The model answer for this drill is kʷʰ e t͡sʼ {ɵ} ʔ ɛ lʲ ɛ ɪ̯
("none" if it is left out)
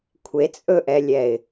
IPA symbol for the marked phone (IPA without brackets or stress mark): ɵ